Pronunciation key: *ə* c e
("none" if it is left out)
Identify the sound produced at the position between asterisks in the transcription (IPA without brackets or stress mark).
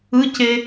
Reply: ɯ